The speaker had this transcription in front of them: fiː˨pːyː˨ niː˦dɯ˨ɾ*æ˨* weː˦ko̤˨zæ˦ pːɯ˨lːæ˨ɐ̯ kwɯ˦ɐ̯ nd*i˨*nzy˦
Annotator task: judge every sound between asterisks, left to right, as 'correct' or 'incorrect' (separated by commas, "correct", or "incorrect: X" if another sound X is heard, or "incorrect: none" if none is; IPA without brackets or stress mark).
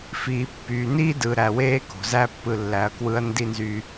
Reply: correct, incorrect: i˦